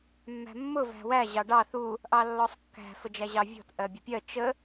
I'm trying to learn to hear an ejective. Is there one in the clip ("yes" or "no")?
no